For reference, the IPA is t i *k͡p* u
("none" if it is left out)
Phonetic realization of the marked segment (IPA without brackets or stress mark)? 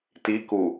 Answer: k